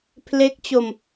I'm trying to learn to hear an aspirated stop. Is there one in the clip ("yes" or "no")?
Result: yes